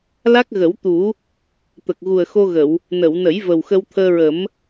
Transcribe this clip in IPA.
l a˦˥ k̚ ɣ ə˨˩˦ w t̪ u˨˩˦ | t̪ ə˨˩ k̚ ɣ u˨˩ ə̯ x o˧ ɣ ə˨˩˨ w | n ə˨˩˨ w n ə˨˩˦ j v ə˨˩ w x ə˧ w t̪ʰ əː˧ ɹ ə˨˩˦ m

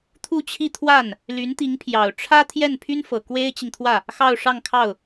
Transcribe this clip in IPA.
t̪ʰ u˥˧ t͡ɕʰ i˥˧ t̪ʰ w a˥˩ n | l y˧˥ n t̪ i˧˥ ŋ pʰ j ɑ˨˩ ʊ̯ ʈ͡ʂʰ ä˥ t̪ʰ j ɛ˥˩ n pʰ y˥ n f ɤ˨˩ k w e˥ ɪ̯ t͡ɕ i˨ ŋ t̪ʰ w ä˥˩ | x ɑ˥˧ ʊ̯ ʂ ɑ˥˧ ŋ kʰ ɑ˥˩ ʊ̯

